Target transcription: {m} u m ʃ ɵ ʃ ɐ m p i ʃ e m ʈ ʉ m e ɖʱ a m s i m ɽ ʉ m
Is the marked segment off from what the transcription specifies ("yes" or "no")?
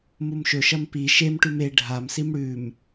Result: no